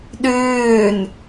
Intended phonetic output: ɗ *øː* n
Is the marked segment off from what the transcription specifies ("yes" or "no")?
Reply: no